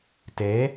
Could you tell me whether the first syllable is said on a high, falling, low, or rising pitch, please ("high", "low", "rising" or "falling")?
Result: rising